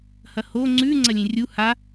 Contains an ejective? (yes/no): no